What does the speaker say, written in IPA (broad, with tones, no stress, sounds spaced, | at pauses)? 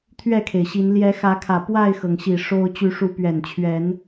t̪ʰ ɥ ɛ˥˨ kʰ e˩ ɪ̯ ɕ i˨˦ n l j ɛ˨˦ x ä˨˦ kʰ ä˨˩ p w a˥˨ ɪ̯ x ɤ˩ ŋ ɕ i˨˩ ʂ o˦ ʊ̯ t͡ɕ y˨˦ ʂ u˨˦ p ɥ ɛ˨˩ n t͡ɕʰ ɥ ɛ˨˦ n